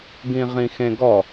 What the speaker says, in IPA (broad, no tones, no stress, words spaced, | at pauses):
ɡĩʁĩxẽɡɔ